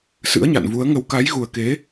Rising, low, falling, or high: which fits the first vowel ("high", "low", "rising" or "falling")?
rising